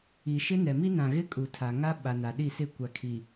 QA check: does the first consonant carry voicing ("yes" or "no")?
no